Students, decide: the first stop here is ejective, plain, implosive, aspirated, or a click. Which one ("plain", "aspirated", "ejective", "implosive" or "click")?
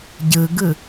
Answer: plain